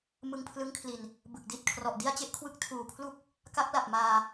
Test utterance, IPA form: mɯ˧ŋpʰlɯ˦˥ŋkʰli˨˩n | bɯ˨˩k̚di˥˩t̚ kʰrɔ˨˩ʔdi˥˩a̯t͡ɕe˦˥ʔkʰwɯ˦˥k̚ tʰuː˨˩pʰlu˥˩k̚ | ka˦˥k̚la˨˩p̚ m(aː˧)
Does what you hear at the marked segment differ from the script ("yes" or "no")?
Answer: no